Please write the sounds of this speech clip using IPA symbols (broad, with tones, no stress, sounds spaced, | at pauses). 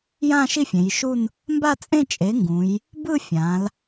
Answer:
j ã˥˧ ʃ i˥˧ fʲ ẽ˩˧ j ʃ u˥˧ n | m b a˥˧ t͡sʼ ẽ˥˧ t͡ʃʼ e˩˥ ŋ ɡ ũ˩˧ j | b ɯ˥˧ fʲ ã˩˧ l